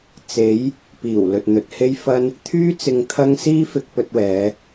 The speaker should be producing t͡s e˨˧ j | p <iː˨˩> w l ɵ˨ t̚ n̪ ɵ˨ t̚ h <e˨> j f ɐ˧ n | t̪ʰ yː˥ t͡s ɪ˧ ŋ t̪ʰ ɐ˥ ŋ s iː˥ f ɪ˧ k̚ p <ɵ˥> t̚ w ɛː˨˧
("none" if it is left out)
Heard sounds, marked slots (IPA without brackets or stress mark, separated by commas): iː˨˩, e˧, ɵ˧